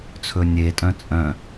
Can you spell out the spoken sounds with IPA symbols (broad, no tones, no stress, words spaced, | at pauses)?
t͡sʰɵnʲetʼœ̃ t͡sʼœ̃